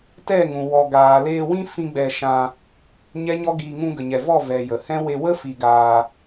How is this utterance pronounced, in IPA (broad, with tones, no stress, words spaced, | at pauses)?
tɛ˦˨ŋũ˨ wɔ˨ɡaː˨ leː˧wĩ˦fĩ˧ ɡ͡bɛ˧ʃã˧ | ɲɛ˦ɲɔ˦ɡiː˧ ŋũ˧ɡə˨ɲɛ˨vɔ˦˨ vɛ˨ jə˨ hɛ̃˦ we˧ wə˦ fi˧ɡaː˧